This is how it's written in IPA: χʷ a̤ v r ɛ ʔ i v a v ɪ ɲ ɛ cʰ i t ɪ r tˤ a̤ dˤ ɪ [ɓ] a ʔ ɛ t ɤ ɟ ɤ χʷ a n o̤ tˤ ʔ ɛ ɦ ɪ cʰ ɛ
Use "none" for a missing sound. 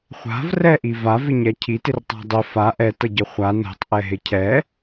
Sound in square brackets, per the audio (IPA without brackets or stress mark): f